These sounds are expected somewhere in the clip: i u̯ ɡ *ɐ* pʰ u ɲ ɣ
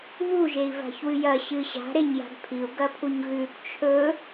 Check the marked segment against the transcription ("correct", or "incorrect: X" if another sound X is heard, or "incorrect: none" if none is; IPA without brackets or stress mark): correct